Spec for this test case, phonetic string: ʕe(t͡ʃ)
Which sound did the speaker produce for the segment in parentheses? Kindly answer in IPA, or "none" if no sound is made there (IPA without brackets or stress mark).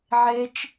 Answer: t͡ʃ